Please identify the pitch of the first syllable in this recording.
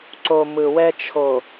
low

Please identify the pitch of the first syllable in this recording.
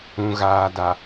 low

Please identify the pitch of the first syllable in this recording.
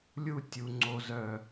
high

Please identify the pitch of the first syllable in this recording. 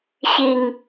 low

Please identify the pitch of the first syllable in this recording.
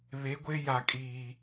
rising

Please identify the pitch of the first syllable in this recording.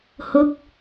rising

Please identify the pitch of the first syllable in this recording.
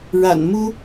low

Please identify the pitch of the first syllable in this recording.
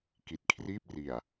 low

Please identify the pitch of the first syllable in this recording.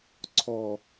low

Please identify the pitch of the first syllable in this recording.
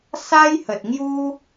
high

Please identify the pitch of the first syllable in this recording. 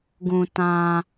low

